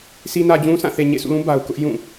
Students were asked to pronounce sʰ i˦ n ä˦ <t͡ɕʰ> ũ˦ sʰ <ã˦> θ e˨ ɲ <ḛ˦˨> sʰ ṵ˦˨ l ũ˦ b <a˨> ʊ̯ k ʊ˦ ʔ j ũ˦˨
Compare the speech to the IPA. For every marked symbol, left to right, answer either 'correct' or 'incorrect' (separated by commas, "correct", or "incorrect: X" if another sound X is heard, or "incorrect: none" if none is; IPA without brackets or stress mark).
incorrect: d͡ʑ, incorrect: ã˦˨, correct, correct